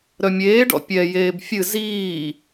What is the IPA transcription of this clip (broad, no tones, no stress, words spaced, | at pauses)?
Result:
ɾœmʲeːɖɔ̰ pʲɛjeːb fʲɨ ziː